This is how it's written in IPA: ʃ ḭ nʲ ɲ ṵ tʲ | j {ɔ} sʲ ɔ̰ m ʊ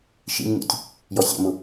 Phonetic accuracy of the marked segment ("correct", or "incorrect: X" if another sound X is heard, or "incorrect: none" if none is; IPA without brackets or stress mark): correct